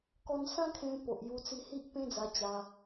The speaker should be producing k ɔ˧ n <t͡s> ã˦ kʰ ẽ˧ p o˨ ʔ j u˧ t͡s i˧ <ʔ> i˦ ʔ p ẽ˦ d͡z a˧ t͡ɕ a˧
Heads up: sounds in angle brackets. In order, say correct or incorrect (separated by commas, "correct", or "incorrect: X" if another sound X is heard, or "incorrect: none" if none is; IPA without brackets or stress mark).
incorrect: s, incorrect: h